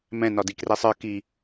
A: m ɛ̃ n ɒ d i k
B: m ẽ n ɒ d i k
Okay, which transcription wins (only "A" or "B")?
A